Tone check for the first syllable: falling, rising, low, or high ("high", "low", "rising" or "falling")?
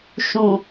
low